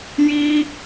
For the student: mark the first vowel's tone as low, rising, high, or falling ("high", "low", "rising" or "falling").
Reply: high